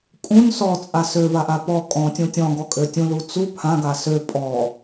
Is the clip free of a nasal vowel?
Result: no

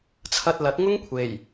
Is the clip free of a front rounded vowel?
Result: yes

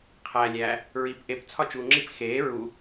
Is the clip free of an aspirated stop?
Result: no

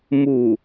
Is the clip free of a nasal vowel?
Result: yes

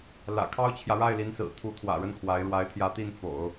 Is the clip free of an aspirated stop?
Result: no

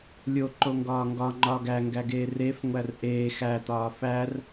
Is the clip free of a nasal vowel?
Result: yes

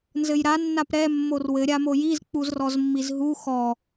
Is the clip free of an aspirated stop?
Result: yes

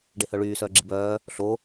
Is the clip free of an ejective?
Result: yes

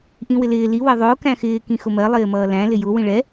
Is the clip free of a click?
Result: yes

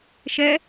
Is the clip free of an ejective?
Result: yes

